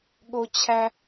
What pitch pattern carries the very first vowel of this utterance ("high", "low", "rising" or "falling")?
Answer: high